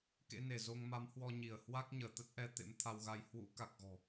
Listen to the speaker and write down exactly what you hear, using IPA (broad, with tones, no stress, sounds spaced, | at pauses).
k ḛ˧˥ n e˧˩ z o˧ ŋ m a˨˦ m h w ɔ˧ ɲ i˧˩ ə̯ h w a˦˥ k̚ ɲ əː˧˩ t̪ ə˦˥ t̚ ʔ ɛ˧ t̪ ḛ˧˥ m t̪ʰ a˧ w ɣ a˧ j h w ṵ˧˥ k a˨˩ k̚ ɣ ɔ̤˨˩